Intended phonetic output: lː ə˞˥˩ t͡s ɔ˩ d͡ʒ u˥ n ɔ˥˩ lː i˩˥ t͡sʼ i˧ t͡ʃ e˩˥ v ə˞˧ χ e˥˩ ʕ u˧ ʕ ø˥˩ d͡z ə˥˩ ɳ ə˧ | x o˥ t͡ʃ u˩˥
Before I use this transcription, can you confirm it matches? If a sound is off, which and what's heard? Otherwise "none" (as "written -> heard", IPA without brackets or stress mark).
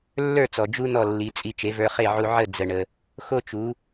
ø˥˩ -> ə˥˩